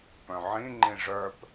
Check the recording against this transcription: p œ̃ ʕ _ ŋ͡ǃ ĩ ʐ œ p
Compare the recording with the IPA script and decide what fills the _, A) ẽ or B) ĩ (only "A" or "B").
B